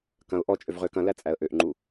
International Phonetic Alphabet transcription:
kɐ̃ʊ̯ ʔɔt͡ʃʼøv ʁøkɐ̃læ t͡sʼæə̯ʔøʔŋ͡ǃu

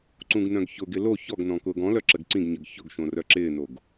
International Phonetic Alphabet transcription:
ǀũɡnœ̃ɡçʊɡɪ lo çɔɡnɔ̃ kʊːɡɔ̃lœ ǁəɡǀĩɡɲəɡ çʊɡʃõ rœǁɪːnoɡ

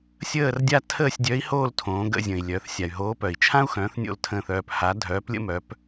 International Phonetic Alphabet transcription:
sʲəː˦˨rdʲa˦˨ tʰəː˦˨sʲdʲœ˨˥i̯hoː˦˨l tʰõː˩˧ ɡə̰˦˨zʲə̃˩i̯lʲœ˩˧θ sʲa˩y̯ɦoː˨˥ pœ˩i̯t͡ʃʰã˥u̯ xœ̃ː˨˥θnʲo̰˦˨ltʰə̃ː˦˨θœː˦˨p ha˨˥dʱœː˨˥plʲə̰˥mœ˨˥p

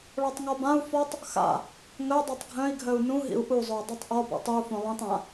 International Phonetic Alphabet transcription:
ɭɔtˤŋɔbãu̯ fɔtˤ | xa̰ | ŋœ dˤitˤɡʱœ̃i̯ɡʱœu̯ nũɦḭu̯ ʔuzˤoi̯ dˤutˤʔɔ bɔ̰tˤɨu̯fõ lˠĩtˤ ã

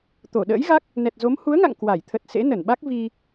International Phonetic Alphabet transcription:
t̪o˧˩ ɗə̰ː˧˥jɣa˦˥k̚ | nɛ˨˩t̚zo˨˦m hu˨˦ə̯ŋa̰˧˨ŋ kwa˧˩j t̪ʰə˨˩t̚ sḛ˧˥nə˧˩nɓa˦˥k̚ vi˧

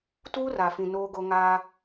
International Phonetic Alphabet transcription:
tuː˦ra˨fĩ˨ noː˦ɡo˦ ŋaː˦

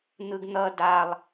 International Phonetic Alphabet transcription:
n̪ɯɡn̪ʌ dalˠ

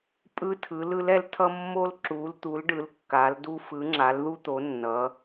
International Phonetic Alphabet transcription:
pʼɯ˦tʰɯ˨˦l ɯ˨˦lɛ˦ltʰʌ˦ mːo˦l ǁu˨˦lt̪u˨˦lɖɯ˨˦l kːa˨˦ldu˦ fɯ˨˦ŋ͡ǁa˨˦lðu˦t̪o˨˦ nːʌ˨˦

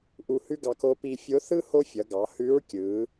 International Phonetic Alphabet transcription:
ʔu˧hʉ˥ɡɑ˧k o˧˥pi˧ fʲo˧˥θɯ˥ ho˥fʲʌ˩˧ɡɑ˩˧ hʉ˧˥ɹkʲɯ˩˧

